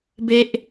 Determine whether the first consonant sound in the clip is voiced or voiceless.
voiced